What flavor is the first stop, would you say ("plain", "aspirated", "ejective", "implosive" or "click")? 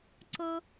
click